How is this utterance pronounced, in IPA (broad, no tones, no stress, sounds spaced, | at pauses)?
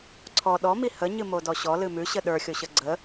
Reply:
ǀʰ ɔ ɗ ɔ m i h ə ɲ ɨ m o d ɔ ɕ ɔ l ɨ m ʉ ɕ ə ɗ ə˞ xʲ o ɕ ə ɡ͡ǀ ə